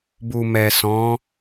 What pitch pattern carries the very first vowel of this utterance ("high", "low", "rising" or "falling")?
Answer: low